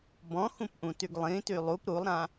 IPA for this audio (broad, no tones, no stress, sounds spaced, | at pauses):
b ɔ̃ x ũ p ʔ ũ t y ɡ lˠ ĩ t y lˠ u p ɾ u lˠ ɾ ã